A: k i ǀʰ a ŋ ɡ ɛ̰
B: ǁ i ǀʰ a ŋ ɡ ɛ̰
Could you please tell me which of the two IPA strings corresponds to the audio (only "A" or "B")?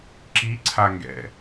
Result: B